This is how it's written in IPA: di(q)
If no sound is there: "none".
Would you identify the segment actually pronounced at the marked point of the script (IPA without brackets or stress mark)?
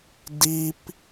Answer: p